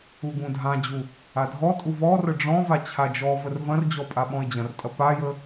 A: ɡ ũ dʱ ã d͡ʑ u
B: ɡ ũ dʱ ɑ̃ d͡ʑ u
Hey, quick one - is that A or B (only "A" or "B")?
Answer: A